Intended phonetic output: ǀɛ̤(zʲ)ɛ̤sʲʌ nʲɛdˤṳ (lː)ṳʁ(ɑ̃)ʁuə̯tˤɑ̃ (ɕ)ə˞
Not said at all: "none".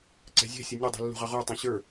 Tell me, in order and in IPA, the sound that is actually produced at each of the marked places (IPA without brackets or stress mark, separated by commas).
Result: zʲ, lː, ɑ, ɕ